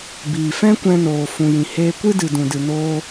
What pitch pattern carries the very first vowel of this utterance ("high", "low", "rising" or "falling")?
low